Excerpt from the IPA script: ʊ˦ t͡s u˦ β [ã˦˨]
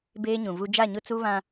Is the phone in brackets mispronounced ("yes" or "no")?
yes